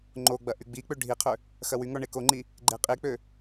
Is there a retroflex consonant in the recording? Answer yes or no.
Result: yes